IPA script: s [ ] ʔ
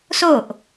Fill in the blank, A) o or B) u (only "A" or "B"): A